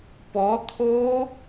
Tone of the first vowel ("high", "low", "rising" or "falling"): rising